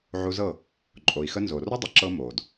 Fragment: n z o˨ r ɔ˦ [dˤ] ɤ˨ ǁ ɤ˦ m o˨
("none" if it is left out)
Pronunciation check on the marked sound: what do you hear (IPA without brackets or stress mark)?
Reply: dˤ